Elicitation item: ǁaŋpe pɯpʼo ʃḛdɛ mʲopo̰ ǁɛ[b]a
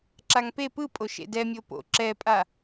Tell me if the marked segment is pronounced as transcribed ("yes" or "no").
no